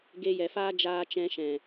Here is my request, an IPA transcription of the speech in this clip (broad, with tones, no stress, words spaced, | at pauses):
ɡe˧jɛ˨faː˦ d͡ʒaː˧t͡ʃɛ̃˧ ʃɛ̃˨